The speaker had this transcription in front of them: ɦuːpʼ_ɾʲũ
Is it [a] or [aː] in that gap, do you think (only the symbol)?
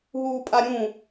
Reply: a